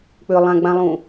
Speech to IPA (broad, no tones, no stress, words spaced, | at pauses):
k͡pʏlˠãɡ͡bãlˠũ